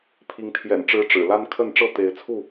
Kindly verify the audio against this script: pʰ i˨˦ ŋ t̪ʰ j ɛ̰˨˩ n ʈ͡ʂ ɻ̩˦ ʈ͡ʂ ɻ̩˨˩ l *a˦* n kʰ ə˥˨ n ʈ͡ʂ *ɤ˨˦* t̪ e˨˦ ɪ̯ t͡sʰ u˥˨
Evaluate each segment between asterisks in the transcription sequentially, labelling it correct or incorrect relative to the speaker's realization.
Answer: correct, incorrect: ɤ˥˨

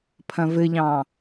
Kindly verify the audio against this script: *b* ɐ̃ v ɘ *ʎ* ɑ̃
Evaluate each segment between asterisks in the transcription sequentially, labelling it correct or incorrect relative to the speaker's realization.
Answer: incorrect: pʰ, correct

